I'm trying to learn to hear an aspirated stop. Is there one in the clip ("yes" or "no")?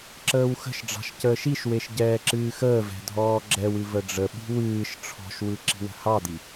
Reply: yes